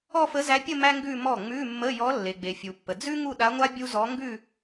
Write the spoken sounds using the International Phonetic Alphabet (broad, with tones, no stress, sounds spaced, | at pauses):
ɔ˥˧ f ə˧˥ z æ˧˥ pʲ ə˥˧ m æ˥ ŋ ɡ ʉ˥˧ m ɔ˥˩ ŋ͡m ʉ˧˥˧ mː ə˧˥˧ j ɔ˧˥ lː e˨ ɡ͡b e˨ fʲ u˨ pː ə˨ d͡z ʉ˥ ŋ u˥˧ ɗ a˧˥ ŋʷ a˥ bʲ u˥ z ɔ˧˥ ŋ ɡ ʉ˥˧